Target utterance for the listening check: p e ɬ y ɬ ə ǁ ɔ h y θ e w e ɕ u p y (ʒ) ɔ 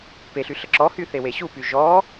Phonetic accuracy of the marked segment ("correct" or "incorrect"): correct